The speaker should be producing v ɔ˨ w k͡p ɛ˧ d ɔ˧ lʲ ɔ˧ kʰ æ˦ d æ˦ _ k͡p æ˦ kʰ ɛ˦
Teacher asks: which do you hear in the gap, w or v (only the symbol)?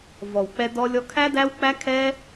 w